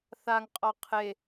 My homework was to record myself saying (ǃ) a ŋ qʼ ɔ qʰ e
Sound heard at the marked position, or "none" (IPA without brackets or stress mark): θ